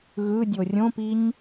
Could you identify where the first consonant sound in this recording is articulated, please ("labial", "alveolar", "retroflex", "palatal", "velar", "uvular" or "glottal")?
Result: velar